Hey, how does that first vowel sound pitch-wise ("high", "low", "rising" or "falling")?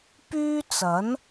high